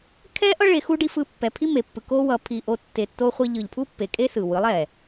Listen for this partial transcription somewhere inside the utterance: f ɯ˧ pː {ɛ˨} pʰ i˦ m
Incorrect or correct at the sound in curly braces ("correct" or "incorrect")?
correct